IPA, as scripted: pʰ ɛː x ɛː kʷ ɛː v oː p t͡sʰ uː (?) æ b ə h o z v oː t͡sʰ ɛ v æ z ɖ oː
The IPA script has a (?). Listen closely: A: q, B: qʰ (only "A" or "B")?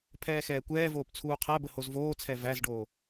B